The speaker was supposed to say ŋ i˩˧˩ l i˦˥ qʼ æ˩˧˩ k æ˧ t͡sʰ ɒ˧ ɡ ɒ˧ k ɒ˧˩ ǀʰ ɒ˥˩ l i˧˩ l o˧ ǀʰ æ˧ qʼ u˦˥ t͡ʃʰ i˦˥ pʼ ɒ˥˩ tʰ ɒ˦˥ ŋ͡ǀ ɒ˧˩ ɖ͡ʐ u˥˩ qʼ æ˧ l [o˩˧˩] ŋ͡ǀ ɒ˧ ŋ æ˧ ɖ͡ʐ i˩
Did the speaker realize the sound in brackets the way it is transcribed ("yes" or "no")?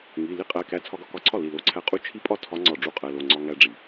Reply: yes